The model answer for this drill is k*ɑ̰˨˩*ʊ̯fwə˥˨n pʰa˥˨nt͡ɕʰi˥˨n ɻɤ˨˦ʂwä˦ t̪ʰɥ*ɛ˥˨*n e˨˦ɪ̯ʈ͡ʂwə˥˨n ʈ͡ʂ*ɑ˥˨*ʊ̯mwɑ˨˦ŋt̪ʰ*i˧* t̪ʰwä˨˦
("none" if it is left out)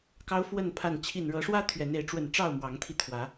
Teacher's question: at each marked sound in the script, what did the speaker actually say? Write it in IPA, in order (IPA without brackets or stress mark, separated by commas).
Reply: ɑ˦, ɛ˨˦, ɑ˥˨, i˧